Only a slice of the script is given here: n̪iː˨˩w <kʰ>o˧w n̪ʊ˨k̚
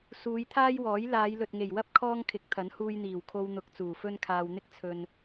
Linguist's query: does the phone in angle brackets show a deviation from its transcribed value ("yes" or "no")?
no